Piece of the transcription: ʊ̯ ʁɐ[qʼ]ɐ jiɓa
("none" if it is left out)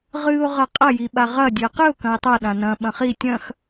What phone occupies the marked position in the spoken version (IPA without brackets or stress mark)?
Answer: qʼ